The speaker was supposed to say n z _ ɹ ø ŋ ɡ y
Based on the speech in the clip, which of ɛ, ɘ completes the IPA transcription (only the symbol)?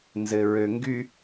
ɘ